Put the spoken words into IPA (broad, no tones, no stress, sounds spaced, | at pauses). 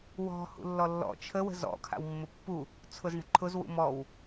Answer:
w ɔ̤ h ṵ lː ɔ lː ɔ̰ t͡ʃʰ ə w ə̤ z ɔ̰ kʰ a̰ w mː ʊ pː u | t͡sʰ ʊ z ɳ ə̤ ǃʰ ʊ z w ṵ m ɔ w